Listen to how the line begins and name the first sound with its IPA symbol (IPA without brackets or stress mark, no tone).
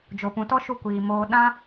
d͡ʒ